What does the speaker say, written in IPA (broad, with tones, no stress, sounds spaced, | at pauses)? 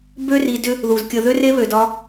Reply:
b ø˥ r i˨ d ʏ˦ | ð u˩ z kʲ ə˨ ð ø˥ r e˦ β ø˩ d ɒ˦